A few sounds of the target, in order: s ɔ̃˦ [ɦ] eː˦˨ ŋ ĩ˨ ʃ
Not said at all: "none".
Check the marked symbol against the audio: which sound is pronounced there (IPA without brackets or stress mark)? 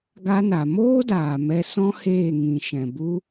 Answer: h